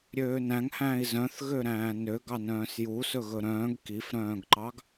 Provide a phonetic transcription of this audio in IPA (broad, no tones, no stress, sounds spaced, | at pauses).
ɾʲ øː n æ̃ ŋ h æ̃ː i̯ z œ̃ θ ɣ ø ɾ æ̃ː n ø ɡ ɑ n œ̃ː s j u s ɵ ɣ ɵ ɾ œ̃ː ɡ k i f ɾ œ̃ː ɡ ǃ ɑ ɡ